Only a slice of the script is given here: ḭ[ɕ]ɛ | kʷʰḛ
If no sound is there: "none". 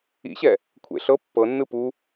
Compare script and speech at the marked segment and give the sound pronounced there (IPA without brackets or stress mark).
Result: ɕ